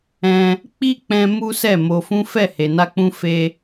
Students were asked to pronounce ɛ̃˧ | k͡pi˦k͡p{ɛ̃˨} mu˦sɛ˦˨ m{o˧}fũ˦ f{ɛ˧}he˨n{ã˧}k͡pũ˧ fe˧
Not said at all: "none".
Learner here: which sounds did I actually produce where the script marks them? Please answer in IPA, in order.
ɛ̃˧, o˧, ɛ˦˨, a˧

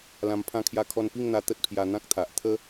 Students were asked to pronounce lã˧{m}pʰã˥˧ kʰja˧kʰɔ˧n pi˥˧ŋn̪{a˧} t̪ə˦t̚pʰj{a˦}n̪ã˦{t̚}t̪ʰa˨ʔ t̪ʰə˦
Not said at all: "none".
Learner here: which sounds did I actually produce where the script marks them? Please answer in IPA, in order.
m, a˧, a˧, k̚

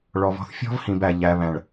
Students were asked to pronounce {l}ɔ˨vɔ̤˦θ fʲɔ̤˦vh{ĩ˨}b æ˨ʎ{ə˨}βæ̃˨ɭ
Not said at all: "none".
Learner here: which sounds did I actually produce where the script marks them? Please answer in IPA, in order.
ɭ, ĩ˨, æ˨

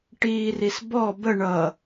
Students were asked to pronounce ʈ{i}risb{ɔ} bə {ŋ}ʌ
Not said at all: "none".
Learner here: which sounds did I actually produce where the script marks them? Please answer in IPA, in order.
iː, ɔ, ɳ

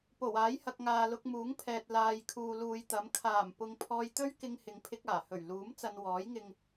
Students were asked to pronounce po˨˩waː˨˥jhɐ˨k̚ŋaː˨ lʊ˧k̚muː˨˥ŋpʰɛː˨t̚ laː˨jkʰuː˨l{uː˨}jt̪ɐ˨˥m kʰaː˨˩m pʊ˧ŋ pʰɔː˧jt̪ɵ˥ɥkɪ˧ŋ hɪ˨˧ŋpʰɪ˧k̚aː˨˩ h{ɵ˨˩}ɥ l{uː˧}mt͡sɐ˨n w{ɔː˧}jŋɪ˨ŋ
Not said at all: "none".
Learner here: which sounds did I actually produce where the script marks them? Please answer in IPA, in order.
uː˨, ɵ˨˩, uː˨˥, ɔː˨˥

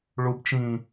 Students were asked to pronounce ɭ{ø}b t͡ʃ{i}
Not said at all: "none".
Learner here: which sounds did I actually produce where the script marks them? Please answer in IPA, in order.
u, ĩ

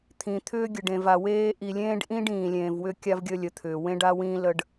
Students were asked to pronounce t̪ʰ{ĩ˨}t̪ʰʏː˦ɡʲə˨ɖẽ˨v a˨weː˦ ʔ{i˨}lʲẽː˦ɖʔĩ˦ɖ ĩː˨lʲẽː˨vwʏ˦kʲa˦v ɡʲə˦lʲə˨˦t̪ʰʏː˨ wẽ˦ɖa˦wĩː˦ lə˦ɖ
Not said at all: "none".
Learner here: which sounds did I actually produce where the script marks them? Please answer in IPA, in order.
ĩ˨, i˨

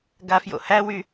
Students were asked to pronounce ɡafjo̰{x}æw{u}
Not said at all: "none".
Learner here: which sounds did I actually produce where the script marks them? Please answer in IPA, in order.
h, y

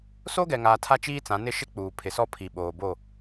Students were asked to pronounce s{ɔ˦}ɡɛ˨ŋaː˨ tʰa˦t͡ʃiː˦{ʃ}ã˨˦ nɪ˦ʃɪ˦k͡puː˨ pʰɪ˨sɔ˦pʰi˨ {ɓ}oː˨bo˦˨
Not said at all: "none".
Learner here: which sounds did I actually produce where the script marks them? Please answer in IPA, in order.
o˦, t͡s, ɓ

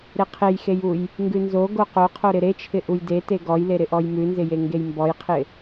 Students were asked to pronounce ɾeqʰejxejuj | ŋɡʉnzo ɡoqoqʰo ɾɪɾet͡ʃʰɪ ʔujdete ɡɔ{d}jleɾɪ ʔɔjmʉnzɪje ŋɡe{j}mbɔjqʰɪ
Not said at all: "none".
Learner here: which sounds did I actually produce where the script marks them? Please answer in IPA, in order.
none, j

